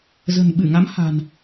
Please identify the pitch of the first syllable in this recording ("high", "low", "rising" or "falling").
low